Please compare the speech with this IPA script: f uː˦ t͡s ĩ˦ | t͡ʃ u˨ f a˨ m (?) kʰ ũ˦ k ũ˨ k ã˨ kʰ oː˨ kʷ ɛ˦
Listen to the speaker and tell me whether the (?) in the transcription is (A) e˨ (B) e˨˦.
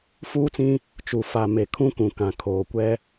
A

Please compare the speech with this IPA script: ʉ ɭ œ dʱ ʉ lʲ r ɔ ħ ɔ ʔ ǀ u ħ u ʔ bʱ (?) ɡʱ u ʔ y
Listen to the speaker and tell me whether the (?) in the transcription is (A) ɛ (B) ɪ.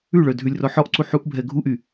A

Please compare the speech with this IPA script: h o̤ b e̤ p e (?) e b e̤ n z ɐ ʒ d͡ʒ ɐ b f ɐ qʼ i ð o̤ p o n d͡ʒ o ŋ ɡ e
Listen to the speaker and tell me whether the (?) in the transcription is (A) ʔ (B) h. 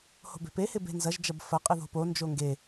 B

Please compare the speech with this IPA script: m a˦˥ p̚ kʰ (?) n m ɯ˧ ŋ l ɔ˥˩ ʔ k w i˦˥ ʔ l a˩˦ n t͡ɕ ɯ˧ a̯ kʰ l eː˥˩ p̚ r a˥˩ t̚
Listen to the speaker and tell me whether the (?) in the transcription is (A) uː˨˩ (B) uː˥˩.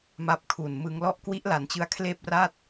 A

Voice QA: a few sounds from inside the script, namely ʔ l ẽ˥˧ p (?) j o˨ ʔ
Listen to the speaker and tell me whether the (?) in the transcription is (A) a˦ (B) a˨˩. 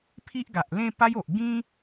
A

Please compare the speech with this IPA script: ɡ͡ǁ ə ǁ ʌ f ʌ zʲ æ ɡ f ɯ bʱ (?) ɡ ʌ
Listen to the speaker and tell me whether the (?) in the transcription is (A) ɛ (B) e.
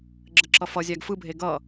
B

